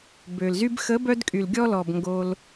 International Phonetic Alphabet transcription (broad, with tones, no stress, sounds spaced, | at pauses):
b ø˨ l z y˦ b x ə˨˦ b œ˧ d kʼ y˨ l ɡʲ ɔ˧ l ɔ˨ b ŋ ɡ o˧ l